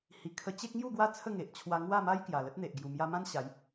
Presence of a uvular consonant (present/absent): absent